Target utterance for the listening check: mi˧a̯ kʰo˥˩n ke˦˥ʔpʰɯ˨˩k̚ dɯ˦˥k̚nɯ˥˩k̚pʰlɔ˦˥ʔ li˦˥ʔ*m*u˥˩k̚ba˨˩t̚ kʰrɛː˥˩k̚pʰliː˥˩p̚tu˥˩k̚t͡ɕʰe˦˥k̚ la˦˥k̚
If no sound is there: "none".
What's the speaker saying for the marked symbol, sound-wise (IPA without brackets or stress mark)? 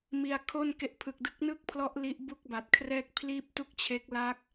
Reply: b